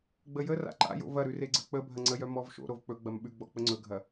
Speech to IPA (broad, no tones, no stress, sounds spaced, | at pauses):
ɡ͡b ə j ə r a̰ ǃ a̰ j o̰ v ɐ ɾ ʉ r e ɡ͡ǀ ə k͡p ə bʱ ɐ ŋ͡ǀ ə j œ m ɔ v ʃ o̰ ɾ o v k͡p ɵ ɡ͡b ɐ m ɓ ʉ ɡ͡b ɔ k͡p ə ŋ͡ǀ ɵ ɡʱ ɐ